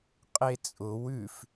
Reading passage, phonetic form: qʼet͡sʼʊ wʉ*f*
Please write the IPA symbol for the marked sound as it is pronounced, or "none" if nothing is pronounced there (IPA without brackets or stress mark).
f